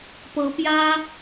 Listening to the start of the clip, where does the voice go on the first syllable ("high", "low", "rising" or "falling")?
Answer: rising